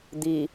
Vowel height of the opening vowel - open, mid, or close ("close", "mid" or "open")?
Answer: close